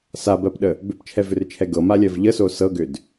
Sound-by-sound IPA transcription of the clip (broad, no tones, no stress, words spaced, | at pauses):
sabɜpɗə | bʏpt͡ʃʰɛvʏrt͡ʃʰɛ ɡɤmalʲɜv ʎəso sɤɡʏd